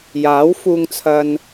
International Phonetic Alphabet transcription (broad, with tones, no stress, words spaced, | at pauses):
jaː˨˥wfuː˧ŋt͡sʰɐ˧n